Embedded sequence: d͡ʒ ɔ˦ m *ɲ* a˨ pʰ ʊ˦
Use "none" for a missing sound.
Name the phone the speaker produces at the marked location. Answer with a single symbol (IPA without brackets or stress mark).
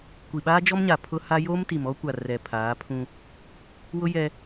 ɲ